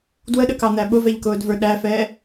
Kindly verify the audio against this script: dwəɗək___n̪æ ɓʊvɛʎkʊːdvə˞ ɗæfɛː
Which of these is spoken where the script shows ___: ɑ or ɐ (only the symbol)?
ɑ